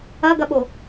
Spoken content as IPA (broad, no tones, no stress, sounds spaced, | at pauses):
ɐ ɡ ɐ ɓ o